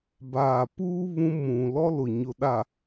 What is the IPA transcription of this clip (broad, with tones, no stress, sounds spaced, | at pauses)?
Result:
b aː˨ p uː˦ β ũ˦ m ũ˨ l ɔ˦ l ʊ˨ ɲ ʊ˨ ɗ a˨